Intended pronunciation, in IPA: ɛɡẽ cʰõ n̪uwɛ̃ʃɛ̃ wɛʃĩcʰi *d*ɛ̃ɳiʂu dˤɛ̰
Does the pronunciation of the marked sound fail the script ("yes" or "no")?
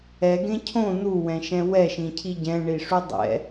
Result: yes